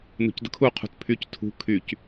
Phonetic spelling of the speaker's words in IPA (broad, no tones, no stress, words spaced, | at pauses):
nṳcdə̤kʰu qʰṳtpʰyc tʰṳ kʰyc